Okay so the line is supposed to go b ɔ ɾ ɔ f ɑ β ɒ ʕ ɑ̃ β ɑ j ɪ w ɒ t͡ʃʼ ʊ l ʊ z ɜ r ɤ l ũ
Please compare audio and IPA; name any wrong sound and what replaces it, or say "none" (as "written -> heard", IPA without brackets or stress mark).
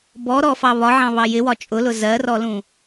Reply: ɤ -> ɔ